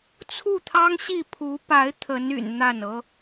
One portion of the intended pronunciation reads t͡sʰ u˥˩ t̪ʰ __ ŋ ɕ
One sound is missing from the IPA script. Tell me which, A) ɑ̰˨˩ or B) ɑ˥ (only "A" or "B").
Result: B